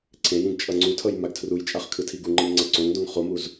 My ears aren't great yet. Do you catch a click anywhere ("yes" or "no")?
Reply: yes